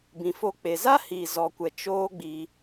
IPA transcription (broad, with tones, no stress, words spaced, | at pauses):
bĩ˨fo˧ k͡pe˨ za˦hi˨ zɔ˨kʷɛ˨ t͡ʃoː˦ɡ͡bi˧